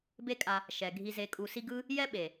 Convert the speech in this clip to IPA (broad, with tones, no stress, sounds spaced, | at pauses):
b e˦ kʼ a˧ | ʃ ɛ˨ ɡʱ i˧ z e˧ kʼ u˧ s i˦ ɡ ɯ˦ | j ɛ˦ ɓ e˨